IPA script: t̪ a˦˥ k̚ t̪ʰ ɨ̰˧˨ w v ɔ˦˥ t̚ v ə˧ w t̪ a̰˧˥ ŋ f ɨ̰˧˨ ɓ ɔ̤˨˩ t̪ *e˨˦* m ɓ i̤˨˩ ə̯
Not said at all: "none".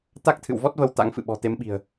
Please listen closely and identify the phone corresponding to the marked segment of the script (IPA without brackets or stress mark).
e˨˦